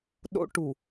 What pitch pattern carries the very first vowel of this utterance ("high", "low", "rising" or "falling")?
high